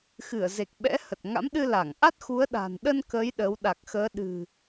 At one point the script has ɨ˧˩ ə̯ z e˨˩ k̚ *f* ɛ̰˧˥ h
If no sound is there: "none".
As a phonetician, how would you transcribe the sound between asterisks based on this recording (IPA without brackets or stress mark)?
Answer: ɓ